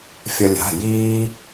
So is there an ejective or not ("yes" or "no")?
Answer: no